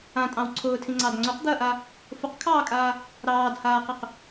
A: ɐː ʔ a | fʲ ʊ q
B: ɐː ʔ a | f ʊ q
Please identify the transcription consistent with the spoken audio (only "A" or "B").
B